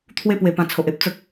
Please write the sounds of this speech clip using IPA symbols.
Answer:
t̪ʰ w e˦ p w e˨˩ p ã˨˩ t͡sʰ o˨ ʔ e˦ p̚ t͡s ə˦ k̚

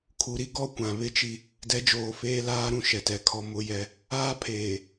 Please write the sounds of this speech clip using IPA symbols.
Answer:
kʰ u˨ ɾ i˦ ɡ ɔ˦ kʷ ã˨ β ɪ˦ t͡ʃ i˦ | d ɛ˨˦ d͡ʒ oː˨ f eː˦ l aː˦ ɾ ũ˦ ʃ ɛ˨ t ɛ˨ kʰ ɔ˦ m ʊ˦ j ɛ˦ | aː˦ pʰ eː˨

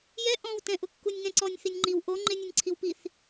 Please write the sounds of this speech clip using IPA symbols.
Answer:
j ɛ ʔ ɔ̃ w t ɛ̃ ʔ ʊ kː u nʲ ŋ ɛ̃ ǀ ɔ nʲ θ i nʲ ŋ͡ǃ i w ʔ o ŋ͡ǃ ɪ nʲ ʊ nʲ ǀʰ i w p i θ

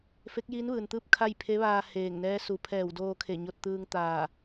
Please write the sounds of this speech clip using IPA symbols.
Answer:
f e˧˥ k̚ j iː˧˥ n ʋ ɯː˩ n t̪ ɯː˥˨ p̚ kʰ a˥˨ j pʰ e˧˥ ʋ aː˧ h eː˧˩ ŋ n ɛː˧˥ s u˩˧ pʰ ɛː˧˩ w d oː˧ kʰ e˧˩ ɲ o˧ t̚ t̪ ɯː˧ ŋ t̪ aː˧˩

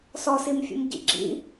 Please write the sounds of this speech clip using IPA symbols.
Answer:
s ɔ s i m fʲ ṵ m ɟ ḭ ɡ͡ǁ ḭ

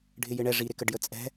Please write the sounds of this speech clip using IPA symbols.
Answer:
ɖʱ ɪ j ɪ ɳ ɛ ʐ i ɾ ɪ k ə ɖ j ə t͡sʼ ɛ̤

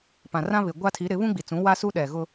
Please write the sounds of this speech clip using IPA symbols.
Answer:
p ã˨ r ã˦ β ɪ˨ ɡʷ a˦ tʰ i˨˦ ɾ ɪ˨˦ β ũ˦ ɡ͡b i˨ t͡s ũ˨˦ w a˦ s u˦ ɗ ɛ˨ ɣ ʊ˦

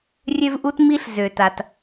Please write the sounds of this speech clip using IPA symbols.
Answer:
rʲ ø˦ v ʔ u˦ t m i˦ ɬ z ø˨ t a˨ t

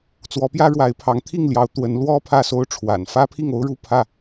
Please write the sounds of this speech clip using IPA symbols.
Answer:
t͡s w ɔ˨˦ p j ä˦ ɻ w a˨˦ ɪ̯ pʰ ɑ˨˦ ŋ t̪ʰ i˥˨ ŋ l j ɑ˨˦ ʊ̯ t̪ w ə˨˦ n l w ɔ˦ pʰ ä˥˨ s o˦ ʊ̯ ʈ͡ʂʰ w a̰˨˩ n f ä˦ pʰ i˥˨ ŋ o˦ ʊ̯ ɻ u˥˨ pʰ ä˥˨

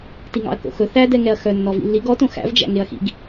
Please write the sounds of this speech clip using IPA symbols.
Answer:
t i ŋ ɑ̰ ɐ̯ k o̰ x ɵ θ æ d ɛ ŋ ɛ ɐ̯ x œ nː ɔ v ḭ lː i ɡ ɔ t õ x æ̰ v d͡ʒ æ̰ ŋ e ɐ̯ x ḭ ɡ

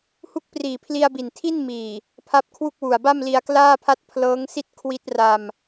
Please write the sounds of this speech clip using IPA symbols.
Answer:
h u˦˥ k̚ p r iː˨˩ pʰ l i˧ a̯ b i˨˩ n tʰ i˥˩ n m iː˨˩ | pʰ a˦˥ p̚ kʰ w u˥˩ k̚ w u˨˩ a̯ b a˥˩ m l i˧ a̯ k l aː˥˩ pʰ a˥˩ t̚ pʰ l ɤː˦˥ ŋ s i˥˩ t̚ kʰ w i˦˥ t̚ r a˧ m

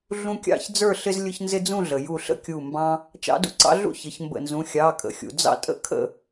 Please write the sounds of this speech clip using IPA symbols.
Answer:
ɮ ũ˦ kʲ ɑ̰˥˨ ç d͡z ə˞˥˨ ɬ ɪ˦ z lʲ ʊ˦ ç n z ɪ˦ d͡z ũ˥˨ ɮ ə˩ j u˧˩ ɬ ə̰˥˨ kʲ u˧˩ m b ɑ̃˦ | t͡ʃ ɑ̰˦ d ṵ˦ ǀ ɑ̰˦ ɮ ṵ˥˨ ç ə˩˧˩ ç m b ə̰˧˩ n z ũ˩˧˩ xʲ ɑ˩˧˩ kʼ ə̰˩ xʲ ṵ˩ d͡z ɑ̰˦ tʼ ə̰˥˨ kʰ ə̰˥˨

